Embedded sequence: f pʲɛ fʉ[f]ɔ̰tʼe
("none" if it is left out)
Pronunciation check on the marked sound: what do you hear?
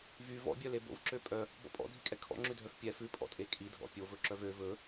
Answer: pʼ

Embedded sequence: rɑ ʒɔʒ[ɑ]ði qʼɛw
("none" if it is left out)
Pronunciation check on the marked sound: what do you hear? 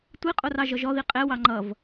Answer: ɔ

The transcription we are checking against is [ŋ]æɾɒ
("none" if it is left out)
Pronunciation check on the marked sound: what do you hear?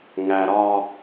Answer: ŋ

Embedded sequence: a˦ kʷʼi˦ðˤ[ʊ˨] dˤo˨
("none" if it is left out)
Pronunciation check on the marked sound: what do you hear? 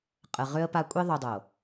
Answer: u˨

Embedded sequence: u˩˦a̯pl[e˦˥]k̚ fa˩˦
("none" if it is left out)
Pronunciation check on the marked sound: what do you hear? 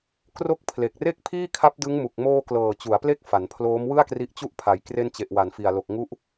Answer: e˦˥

